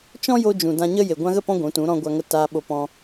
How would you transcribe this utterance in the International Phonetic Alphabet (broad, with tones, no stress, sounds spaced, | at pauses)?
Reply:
t͡ʃ ɔ̃˦ j o˧ d͡ʒ ũ˨ d ã˧ ɲ ə˦ j e˨ ɡʷ ã˧ ɣ ə˦˨ p ɔ̃˧ ɡʷ ũ˨˦ t ũ˨˦ ɾ ɔ̃˧ ɡʷ a˧ ŋ ə˧ t a˧ ɓ o˧ p ɔ̃˧